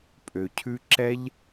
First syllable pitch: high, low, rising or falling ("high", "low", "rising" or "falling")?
low